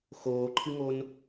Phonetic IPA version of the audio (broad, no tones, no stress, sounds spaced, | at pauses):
x oː ǃʰ ɨ ŋ o n